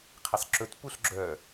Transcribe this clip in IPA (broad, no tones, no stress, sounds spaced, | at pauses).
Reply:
qʰ i sˤ ǁ ɵ t p u ɬ ɡ͡ǁ œ